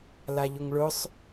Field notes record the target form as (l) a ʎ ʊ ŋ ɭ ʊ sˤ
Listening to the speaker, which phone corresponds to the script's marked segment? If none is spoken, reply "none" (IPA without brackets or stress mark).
l